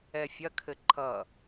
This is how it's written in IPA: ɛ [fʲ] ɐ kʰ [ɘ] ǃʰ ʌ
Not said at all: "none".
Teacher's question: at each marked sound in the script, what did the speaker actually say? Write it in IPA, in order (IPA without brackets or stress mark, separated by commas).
fʲ, ɘ